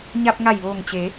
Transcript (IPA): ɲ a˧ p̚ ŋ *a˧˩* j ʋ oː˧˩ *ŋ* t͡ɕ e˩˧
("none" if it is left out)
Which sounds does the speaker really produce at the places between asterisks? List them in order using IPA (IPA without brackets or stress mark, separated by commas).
a˧˩, ŋ